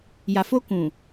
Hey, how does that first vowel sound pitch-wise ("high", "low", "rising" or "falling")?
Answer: low